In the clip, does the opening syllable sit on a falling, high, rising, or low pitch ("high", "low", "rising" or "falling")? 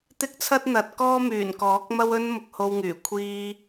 high